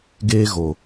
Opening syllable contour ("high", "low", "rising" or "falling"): high